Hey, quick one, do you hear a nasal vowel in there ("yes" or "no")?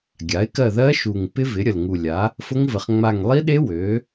no